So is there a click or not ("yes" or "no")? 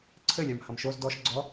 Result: yes